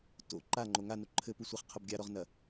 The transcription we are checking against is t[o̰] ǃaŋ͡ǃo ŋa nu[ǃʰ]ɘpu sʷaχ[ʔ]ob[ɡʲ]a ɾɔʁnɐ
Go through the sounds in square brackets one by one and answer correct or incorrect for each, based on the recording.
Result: correct, correct, incorrect: qʰ, correct

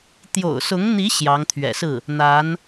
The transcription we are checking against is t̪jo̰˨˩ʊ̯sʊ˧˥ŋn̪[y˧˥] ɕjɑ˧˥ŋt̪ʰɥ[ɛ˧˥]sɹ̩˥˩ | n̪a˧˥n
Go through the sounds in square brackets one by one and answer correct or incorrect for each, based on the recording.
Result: incorrect: i˧˥, incorrect: ɛ̰˨˩

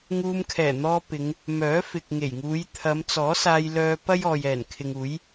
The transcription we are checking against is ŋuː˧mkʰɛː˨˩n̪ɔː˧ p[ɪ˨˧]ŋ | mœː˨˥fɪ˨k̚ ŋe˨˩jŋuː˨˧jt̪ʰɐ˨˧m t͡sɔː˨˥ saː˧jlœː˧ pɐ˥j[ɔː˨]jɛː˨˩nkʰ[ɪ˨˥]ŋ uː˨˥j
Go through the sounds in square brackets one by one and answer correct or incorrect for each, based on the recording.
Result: correct, correct, incorrect: ɪ˨

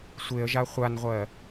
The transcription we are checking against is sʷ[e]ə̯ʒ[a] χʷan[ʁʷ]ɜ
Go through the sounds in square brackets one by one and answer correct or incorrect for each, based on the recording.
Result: correct, correct, correct

